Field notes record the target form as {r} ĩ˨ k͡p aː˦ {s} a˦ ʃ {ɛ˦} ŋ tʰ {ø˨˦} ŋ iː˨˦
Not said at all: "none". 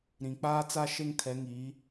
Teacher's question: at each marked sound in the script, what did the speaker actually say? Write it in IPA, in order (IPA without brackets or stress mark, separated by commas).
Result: ɾ, t͡s, e˦, ɛ˨˦